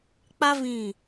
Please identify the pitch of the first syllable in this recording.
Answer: high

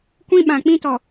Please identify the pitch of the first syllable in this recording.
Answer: high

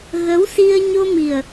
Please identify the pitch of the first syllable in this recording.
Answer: rising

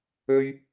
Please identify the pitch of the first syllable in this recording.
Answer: high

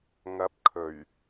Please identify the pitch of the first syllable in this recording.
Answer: rising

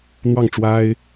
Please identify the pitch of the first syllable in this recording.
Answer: falling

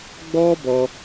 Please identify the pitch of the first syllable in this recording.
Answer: high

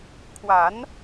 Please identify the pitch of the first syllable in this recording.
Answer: rising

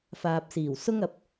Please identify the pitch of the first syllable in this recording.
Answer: low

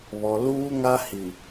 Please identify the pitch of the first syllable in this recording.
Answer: low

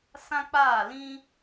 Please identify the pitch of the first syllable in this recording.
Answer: high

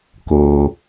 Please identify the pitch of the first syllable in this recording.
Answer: low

